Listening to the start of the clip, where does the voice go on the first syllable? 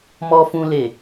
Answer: low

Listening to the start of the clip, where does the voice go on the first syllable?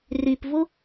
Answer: low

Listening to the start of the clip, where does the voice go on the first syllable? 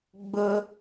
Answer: high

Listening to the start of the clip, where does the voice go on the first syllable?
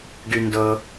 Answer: low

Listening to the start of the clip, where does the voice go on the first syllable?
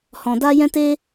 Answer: low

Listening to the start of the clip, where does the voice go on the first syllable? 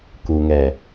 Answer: low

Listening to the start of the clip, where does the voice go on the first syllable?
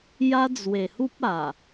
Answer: high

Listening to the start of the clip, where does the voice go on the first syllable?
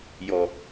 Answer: low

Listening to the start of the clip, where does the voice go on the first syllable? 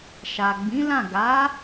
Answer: low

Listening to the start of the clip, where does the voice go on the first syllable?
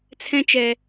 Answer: high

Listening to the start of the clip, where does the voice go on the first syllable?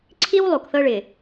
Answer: high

